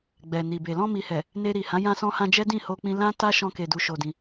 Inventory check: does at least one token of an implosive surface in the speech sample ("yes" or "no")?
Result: no